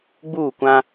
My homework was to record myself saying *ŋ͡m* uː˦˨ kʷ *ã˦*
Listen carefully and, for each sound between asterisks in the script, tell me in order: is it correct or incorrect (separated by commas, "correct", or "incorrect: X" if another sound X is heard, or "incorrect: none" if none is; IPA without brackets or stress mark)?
incorrect: ɡ͡b, correct